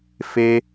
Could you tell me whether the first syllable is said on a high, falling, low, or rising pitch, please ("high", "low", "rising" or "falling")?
high